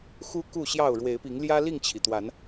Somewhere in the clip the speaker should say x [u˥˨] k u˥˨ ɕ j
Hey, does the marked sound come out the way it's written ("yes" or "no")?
no